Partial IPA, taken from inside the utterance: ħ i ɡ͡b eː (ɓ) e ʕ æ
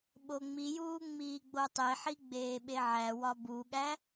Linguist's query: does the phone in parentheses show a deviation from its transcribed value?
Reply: no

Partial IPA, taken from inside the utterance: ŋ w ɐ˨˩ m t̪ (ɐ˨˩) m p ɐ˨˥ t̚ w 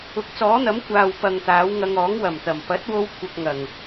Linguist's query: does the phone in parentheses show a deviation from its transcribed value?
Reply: no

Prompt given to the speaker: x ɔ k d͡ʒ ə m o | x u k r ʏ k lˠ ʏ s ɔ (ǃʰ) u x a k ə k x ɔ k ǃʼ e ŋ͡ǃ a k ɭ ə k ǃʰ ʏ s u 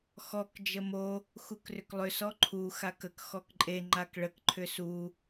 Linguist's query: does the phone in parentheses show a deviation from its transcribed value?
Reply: no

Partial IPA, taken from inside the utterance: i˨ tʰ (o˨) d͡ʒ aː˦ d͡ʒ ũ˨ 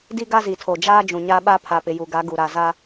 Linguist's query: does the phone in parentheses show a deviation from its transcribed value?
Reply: no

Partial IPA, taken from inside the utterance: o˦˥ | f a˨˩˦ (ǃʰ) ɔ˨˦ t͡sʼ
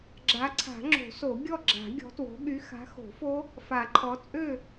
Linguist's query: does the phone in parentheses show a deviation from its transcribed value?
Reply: no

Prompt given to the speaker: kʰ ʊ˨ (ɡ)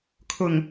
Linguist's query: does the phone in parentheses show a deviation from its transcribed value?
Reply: yes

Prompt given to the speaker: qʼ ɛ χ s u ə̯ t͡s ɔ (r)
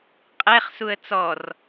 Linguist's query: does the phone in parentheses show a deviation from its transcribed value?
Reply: no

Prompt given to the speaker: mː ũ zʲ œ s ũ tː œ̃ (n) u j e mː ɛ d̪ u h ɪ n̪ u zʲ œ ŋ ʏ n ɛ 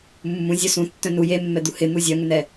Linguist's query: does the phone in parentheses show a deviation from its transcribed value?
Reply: no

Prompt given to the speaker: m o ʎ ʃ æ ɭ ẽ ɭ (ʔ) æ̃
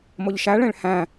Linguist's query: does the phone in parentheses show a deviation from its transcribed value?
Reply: yes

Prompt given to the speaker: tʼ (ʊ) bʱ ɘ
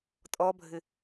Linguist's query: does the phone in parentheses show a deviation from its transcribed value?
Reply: yes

